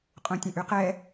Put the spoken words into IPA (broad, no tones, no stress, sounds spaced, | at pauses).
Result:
qʼ ũ tʲ ə̃ ʔ y q ɛ